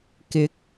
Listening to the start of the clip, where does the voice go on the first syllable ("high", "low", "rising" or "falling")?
rising